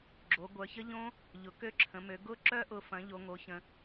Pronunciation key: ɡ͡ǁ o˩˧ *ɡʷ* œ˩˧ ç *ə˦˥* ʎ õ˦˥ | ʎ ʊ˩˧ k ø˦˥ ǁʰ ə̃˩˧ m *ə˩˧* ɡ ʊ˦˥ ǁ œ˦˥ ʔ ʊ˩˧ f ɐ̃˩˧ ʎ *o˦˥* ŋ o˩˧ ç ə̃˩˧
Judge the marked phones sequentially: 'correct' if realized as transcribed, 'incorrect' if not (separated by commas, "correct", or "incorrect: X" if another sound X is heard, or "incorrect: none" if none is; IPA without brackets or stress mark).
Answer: correct, correct, incorrect: ø˩˧, incorrect: o˩˧